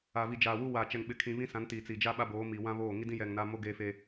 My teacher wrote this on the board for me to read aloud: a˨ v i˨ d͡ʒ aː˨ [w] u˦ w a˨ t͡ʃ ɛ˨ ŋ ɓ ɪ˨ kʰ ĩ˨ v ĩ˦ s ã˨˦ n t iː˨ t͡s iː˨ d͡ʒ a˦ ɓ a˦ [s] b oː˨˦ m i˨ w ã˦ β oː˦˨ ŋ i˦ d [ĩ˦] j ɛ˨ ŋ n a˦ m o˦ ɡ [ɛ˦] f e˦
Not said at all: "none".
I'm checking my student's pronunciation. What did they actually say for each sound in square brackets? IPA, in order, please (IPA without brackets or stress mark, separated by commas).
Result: w, none, ĩ˦, e˦